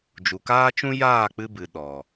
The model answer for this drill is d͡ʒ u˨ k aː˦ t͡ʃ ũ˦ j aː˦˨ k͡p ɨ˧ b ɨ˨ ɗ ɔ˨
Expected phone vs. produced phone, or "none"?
none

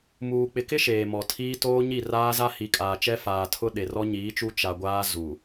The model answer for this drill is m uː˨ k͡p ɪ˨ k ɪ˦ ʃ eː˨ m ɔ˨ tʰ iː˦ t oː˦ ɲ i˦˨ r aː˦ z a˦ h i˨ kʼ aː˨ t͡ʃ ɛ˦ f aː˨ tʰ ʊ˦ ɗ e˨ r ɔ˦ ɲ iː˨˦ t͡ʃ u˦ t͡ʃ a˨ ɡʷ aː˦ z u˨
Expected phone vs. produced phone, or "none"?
none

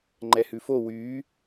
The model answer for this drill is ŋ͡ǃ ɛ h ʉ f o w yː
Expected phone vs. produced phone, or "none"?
none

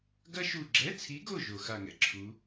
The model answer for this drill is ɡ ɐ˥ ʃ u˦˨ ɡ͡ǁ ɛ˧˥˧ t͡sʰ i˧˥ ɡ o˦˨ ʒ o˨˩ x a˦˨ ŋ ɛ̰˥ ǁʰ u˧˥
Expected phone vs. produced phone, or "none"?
none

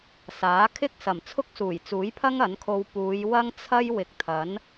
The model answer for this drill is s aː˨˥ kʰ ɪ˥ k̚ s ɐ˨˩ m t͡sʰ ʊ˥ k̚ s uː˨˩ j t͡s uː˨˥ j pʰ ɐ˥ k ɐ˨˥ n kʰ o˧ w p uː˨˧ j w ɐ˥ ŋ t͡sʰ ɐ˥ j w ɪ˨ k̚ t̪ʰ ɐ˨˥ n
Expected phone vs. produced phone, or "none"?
k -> ŋ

